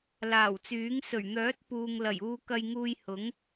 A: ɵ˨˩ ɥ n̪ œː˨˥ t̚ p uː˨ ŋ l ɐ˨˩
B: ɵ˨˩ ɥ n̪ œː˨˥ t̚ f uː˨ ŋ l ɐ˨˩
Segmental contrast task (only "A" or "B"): A